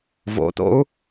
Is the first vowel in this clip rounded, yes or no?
yes